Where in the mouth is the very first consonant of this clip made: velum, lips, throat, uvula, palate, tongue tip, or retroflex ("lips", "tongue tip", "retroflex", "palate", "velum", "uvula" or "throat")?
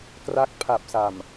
velum